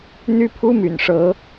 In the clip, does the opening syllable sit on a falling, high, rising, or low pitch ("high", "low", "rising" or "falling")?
high